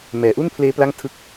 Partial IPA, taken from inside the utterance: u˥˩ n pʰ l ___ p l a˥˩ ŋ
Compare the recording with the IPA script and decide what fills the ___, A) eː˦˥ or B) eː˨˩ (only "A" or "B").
A